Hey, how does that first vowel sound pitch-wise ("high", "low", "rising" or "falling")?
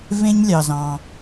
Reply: high